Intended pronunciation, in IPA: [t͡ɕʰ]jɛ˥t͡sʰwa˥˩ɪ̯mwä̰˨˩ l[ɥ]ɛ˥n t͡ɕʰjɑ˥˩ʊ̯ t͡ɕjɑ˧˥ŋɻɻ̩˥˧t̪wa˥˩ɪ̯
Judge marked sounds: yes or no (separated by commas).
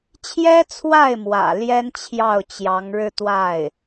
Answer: yes, no